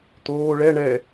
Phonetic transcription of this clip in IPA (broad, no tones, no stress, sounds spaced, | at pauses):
t̪ oː ɭ ɛ ɳ ɛ